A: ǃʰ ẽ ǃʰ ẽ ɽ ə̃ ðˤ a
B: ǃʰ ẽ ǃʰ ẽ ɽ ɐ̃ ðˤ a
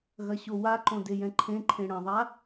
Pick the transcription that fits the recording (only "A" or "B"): B